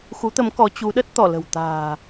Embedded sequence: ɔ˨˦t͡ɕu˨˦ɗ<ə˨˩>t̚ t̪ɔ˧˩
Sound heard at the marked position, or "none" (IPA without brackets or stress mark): ə˦˥